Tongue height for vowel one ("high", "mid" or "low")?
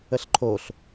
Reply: mid